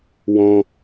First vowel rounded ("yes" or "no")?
yes